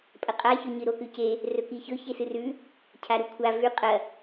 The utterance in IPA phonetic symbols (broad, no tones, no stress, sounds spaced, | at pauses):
pʼ ɐ qʼ a ç ɵ ɲ ɨ ɾ o k ʉ c e | r ɵ k i ç ɵ ç e s ɨ r ʉ | cʰ a ɾ u kʷʰ a v ʉ qʼ ɐ